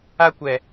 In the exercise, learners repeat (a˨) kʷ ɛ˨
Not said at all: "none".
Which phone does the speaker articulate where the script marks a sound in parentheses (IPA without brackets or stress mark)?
a˦